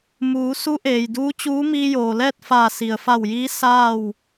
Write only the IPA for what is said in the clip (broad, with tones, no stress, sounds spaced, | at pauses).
m uː˩˧ s u˧˥ ʔ eː˩ j d uː˧˥ t͡ɕ uː˧˥ m iː˧ j oː˩ l ɛː˥˨ t̚ f aː˧˩ s i˩ ə̯ f a˧˩ w j iː˧˥ s aː˥˨ w